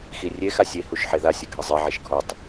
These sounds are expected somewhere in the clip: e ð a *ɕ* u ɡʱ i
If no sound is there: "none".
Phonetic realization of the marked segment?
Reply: sʲ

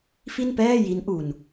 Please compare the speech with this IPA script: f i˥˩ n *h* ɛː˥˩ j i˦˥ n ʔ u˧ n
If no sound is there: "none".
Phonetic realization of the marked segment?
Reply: p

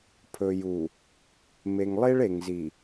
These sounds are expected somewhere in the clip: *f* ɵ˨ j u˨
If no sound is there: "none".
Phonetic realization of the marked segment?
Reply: pʰ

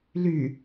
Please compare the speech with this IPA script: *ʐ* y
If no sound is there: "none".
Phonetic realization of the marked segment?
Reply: l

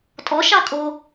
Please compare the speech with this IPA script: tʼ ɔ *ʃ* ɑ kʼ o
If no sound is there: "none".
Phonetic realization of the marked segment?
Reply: ʃ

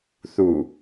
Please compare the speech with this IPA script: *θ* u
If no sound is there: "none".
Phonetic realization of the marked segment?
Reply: θ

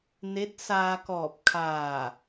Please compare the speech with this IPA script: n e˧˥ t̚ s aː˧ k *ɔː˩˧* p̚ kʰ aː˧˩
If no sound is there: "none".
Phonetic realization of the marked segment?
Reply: ɔː˧˩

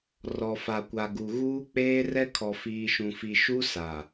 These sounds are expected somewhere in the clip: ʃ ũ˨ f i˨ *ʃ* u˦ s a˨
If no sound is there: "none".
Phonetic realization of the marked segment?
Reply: ʃ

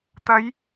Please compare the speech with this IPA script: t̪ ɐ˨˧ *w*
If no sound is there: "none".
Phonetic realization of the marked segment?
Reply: j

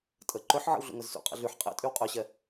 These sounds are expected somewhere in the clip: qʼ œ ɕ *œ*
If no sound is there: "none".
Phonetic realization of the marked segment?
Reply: ɛ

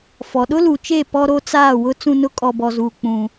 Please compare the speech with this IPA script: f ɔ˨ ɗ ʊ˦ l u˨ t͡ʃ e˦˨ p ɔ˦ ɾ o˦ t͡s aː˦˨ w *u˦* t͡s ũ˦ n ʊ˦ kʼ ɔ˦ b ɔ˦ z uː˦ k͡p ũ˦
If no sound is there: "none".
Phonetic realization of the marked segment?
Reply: ʊ˦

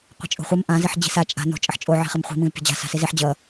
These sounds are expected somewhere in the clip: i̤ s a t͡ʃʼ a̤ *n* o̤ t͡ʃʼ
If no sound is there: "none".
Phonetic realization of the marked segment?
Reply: n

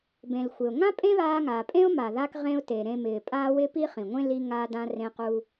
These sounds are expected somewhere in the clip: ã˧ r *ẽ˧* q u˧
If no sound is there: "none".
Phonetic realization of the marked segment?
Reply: ẽ˧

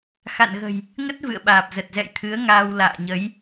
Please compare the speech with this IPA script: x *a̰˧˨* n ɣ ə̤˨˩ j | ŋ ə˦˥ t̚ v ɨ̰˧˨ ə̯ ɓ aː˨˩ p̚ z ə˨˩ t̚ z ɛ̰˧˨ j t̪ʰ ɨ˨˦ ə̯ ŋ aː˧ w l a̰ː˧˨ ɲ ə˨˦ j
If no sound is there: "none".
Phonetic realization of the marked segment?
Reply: a̰˧˨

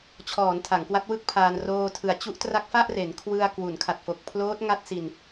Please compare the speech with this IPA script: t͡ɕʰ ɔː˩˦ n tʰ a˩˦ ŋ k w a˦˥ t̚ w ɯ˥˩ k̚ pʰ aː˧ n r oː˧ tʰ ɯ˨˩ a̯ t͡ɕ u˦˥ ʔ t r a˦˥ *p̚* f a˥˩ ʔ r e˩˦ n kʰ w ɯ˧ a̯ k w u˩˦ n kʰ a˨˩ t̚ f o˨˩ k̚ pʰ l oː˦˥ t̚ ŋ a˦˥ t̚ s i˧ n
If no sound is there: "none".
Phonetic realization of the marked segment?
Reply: k̚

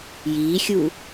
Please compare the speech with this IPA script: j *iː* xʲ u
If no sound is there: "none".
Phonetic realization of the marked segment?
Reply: iː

